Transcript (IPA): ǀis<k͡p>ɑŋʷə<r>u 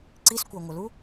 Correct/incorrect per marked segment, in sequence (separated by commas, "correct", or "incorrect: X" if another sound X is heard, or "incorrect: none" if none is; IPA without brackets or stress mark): incorrect: kʷ, incorrect: l